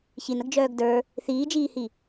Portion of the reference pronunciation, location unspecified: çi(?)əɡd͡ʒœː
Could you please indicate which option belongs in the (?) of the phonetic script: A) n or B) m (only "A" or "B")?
A